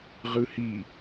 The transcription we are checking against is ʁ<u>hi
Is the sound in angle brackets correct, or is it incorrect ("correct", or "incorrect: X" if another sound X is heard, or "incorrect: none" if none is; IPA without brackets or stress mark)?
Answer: incorrect: ɯ